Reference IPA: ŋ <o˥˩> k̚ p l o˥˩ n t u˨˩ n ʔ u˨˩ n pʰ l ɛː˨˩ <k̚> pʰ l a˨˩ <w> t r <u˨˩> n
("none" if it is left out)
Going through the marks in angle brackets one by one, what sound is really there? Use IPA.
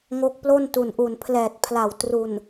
o˦˥, t̚, w, u˨˩

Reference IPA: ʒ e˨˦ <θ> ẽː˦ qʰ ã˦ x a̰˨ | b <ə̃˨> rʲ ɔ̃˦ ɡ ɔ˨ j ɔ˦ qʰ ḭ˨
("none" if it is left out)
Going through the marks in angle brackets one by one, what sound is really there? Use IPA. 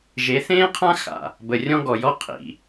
θ, ə˨

